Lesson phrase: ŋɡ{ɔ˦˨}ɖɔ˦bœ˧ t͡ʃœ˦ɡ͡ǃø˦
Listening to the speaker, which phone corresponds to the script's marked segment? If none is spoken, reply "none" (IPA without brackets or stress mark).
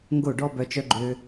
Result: o˦˨